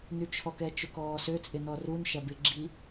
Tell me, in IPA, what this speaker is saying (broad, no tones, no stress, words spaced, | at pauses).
nyt͡ʃʰɔkɛ t͡ʃʊkɔːsøt͡sʼɪ nɔrunʃɐ bɪɡ͡ǁi